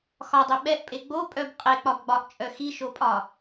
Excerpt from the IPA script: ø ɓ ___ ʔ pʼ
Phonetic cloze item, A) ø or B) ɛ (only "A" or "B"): B